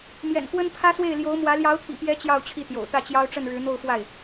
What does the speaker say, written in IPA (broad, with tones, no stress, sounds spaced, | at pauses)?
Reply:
m j ɛ̰˨˩ n k w ə˥ n pʰ ä˥ s w e˥˩ ɪ̯ l j o˧˥ ʊ̯ m w ä˧˥ l j ɑ˧˥ ʊ̯ t̪ʰ ḭ˨˩ p j ɛ˧˥ t͡ɕ j ɑ˥˧ ʊ̯ t͡ɕʰ i˥˩ t̪ j o̰˨˩ ʊ̯ t̪ ä˥˩ t͡ɕ j ɑ˥ ʊ̯ ʈ͡ʂ ə˥˩ n ɻ ɻ̩˧˥ n̪ o˥˧ ʊ̯ f w a˥˩ ɪ̯